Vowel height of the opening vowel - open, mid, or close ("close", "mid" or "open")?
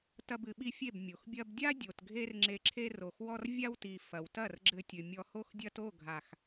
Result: open